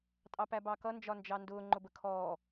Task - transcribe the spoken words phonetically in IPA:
tʼ ɑ p æ b ɑ k ʌ n d͡ʒ ɒ n d͡ʒ ɑ n d ʊː ŋ͡ǃ ʊ b ə kʰ ɔː

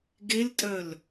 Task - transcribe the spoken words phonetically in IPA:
ɡ e l tʼ œ l

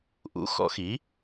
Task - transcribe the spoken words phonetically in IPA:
ʔ ṵ˩˥ x ɔ̰˨˩˦ x i˩˥

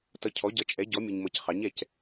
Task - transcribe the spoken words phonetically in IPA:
t ʌ˨ cʰ ɔ˩˥ ɟ ʌ˩˥ t͡ʃʼ ɛ˩˥ ɟ ɔ˩˥ mʲ ʊ˨ ɲ m ʌ˨ c χ ɑ˩˥ ɲ ɛ˨ c

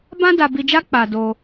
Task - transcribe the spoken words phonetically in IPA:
b ã˦ d a˧ b i˧ d͡ʒ a˦ k͡p a˧ d o˧

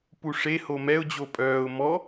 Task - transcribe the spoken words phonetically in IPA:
p u ʂ e h o m ɛ ʊ̯ d͡ʑ o pʼ œː ʊ̯ m ɔ

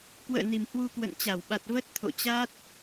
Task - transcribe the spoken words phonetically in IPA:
k w ə̰ː˧˨ n i˨˩ m h w u˧ k w ə̰˧˨ n t͡ɕ a˧˩ w ɓ a˨˩ t̚ v ə˦˥ t̚ t̪ʰ o̰˧˨ t͡ɕ a˦˥ t̚

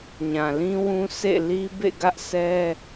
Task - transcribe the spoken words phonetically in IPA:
ɲ ã˨ l ĩ˦ w ũ˦ s ḛ˦˨ l i˦ b ḛ˦˨ ɡ ä˦ ʔ s ɛ˦

